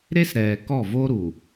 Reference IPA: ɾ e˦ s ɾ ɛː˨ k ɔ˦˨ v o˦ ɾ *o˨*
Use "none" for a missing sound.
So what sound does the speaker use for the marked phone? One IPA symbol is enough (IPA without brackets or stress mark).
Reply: u˨